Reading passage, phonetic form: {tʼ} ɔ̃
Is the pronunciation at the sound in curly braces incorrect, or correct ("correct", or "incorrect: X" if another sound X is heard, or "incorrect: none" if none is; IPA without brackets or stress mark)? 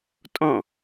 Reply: correct